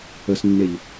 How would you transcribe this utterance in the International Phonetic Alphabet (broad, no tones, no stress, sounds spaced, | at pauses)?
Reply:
ə s nː e ʎ